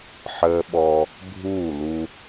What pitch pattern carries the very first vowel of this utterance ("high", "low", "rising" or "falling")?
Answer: high